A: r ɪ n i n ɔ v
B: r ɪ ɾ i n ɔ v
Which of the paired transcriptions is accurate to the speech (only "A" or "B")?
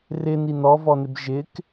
A